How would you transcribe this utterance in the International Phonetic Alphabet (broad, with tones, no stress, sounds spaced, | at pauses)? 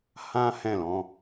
h ã˦ h ɛ̃˦˨ l ɔ̃˧